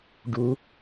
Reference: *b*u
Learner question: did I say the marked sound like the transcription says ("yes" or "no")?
no